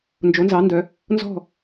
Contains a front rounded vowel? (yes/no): yes